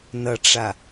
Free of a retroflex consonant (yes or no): no